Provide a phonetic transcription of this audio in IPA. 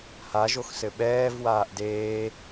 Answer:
haʒoxsɘ ɓɛːvwaːʔ deː

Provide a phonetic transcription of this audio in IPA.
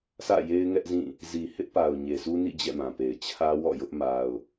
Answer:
sä̰˦˨je˦ɪ̯ŋɛ˦ʔzĩ˦˨ | zi˨hɪ˦ʔpa˨ʊ̯ ɲe˨su˦nḭ˦˨ d͡ʑɛ̰˦˨mã˨pe˨ɪ̯ t͡ɕʰä˦wɔ̰˦˨jʊ˦ʔ ma˦ʊ̯

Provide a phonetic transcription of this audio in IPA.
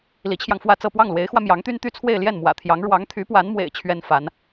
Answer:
li˧˥t͡ɕʰjɑ˧ŋfwä˥˧t͡sɤ˥˧ pwɑ˥˩ŋlwe˧˥ɪ̯xwä˧ mjɑ˧˥ŋt̪y˥nt̪y˥˧ t͡sʰwe˥˧ɪ̯ljɛ˥˩nmwä̰˨˩t̪ʰjɑ˧˥ŋ ɻwɑ˧˥ŋt̪ʰy˧˥pwa˧˥nmwḛ˨˩ɪ̯ t͡ɕʰɥɛ˥nfa˧˥n

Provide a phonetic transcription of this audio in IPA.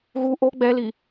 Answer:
ɣu ʔo ɡ͡bɛli

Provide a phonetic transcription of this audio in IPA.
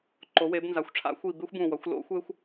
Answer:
ǃo˩˥we˩˥bnza˩˥xʷ ʈ͡ʂʰa̰˥xʷi˧˩ be˥xʷbũ˧˩wʌ˩˥xʷ lo̰˥xʷe˥xʷ

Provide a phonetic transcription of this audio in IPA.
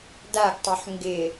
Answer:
daɡtˤɵħ ŋɡɪ

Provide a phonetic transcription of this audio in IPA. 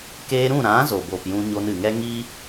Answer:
keː˧ɾũ˦˨ɾã˨˦ zo˨bo˨pjũ˧ ɲo˧nɨ˨ŋɛ˦ ŋi˦

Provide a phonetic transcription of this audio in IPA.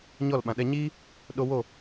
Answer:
ɲɔ˦˨lɓã˨ ɗɛ˧ɲiː˦ | ɗo˦ wo˦˨

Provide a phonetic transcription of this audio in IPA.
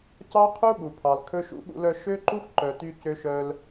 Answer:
cɑ˦qʰu˦ ɠu˨pʰɑ˨l kʰɵ˦ʃṵ˦ɠṵ˦lœ˦ ʃø˦ǃu˦xǃœ˨ ty˦cø˦ʃœ˦l

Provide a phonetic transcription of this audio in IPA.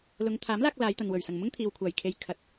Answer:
lʊ˨˧ŋt̪ʰaː˨˥mlaː˧k̚ laː˨˧jt̪ɐ˨nwɵ˨˩ɥ sɐ˨˩ŋmʊ˥ŋt̪ʰiː˨w kʷʰaː˨˩jkʰe˨j kʰɐ˨˥t̚

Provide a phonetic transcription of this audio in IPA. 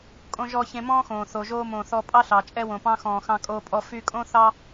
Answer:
kʼõ˧ʒɔ˧ çẽ˧mɔ̃ː˥xõː˩ θo˩ʒoː˧mõ˩ θɔ˧pʼɑ˥ɬɑ˩ t͡ʃʼɛ˧wõ˩pɑ̃˧xɔ̃ː˩ xɑ̃˧kʼoː˧pʼɔ˧ fy˧kʼõ˥ θɑ˥

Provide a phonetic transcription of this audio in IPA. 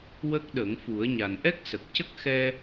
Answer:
wə˦˥k̚ɗə˨˩˦ŋ fu˨˩˦ə̯ɲa˨˩n ʔɛ˦˥k̚ sə˨˩k̚cə˦˥k̚ xɛ˧

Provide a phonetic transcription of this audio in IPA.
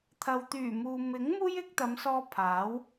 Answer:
t̪ʰɐ˨wt̪yː˨˩muː˨ mɪ˨˥ŋ muː˥jɪ˨˥k̚t̪ɐ˨˧msɔː˧ pʰaː˨˥w

